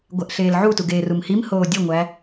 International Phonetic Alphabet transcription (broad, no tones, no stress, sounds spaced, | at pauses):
ɡʷ æ ʔ ɬ eː l ʕ u t u ɡ eː r u m h i m h oː dʲ e ŋʷ æ